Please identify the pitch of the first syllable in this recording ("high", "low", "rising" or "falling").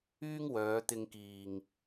high